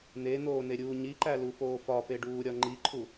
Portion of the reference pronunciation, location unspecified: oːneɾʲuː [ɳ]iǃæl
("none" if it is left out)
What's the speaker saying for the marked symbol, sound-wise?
ɲ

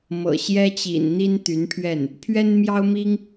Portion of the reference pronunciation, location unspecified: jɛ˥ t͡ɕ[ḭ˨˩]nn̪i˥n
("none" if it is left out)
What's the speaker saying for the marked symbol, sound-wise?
ḭ˨˩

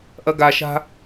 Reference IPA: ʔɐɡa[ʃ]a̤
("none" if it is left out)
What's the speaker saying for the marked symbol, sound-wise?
ʃ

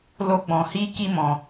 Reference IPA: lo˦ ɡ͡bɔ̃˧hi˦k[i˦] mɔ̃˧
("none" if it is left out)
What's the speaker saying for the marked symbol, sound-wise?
i˦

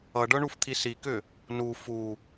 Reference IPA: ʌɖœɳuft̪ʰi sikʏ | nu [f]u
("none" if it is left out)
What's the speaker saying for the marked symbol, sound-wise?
f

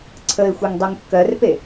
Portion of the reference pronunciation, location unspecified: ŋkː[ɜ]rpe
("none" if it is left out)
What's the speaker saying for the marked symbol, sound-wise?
ɜ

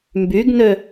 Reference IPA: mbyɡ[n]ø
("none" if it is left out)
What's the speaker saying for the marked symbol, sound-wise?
n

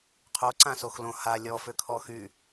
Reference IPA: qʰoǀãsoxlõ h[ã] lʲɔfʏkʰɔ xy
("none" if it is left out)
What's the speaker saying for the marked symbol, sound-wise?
a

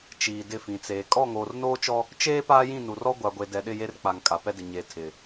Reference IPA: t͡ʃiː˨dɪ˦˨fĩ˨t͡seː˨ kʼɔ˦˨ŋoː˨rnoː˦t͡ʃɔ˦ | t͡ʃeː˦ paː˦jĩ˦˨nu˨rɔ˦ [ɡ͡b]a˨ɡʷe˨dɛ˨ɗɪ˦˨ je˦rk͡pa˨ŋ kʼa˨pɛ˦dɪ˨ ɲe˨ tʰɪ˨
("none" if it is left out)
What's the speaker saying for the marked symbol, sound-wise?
ɡʷ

